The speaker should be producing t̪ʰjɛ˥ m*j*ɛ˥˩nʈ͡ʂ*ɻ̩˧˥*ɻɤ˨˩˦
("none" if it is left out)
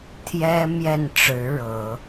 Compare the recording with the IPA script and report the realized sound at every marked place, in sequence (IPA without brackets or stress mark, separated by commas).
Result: j, ɻ̩˧˥